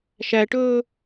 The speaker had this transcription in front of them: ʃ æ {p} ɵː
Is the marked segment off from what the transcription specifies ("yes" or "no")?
yes